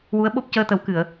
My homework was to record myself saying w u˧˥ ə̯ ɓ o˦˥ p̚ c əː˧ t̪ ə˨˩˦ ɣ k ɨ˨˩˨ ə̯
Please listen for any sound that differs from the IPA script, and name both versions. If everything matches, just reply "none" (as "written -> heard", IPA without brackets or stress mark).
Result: ɣ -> w